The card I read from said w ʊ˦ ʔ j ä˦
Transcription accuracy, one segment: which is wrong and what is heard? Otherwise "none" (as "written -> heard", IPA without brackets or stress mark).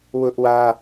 j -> w